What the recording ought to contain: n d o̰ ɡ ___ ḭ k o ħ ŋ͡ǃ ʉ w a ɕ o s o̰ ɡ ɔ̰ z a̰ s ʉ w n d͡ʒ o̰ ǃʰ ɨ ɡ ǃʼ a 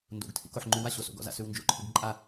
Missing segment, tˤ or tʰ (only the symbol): tʰ